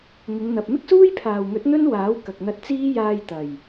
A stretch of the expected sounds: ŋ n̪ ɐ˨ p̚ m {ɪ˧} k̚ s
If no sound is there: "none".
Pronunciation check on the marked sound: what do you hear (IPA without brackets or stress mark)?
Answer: ɪ˥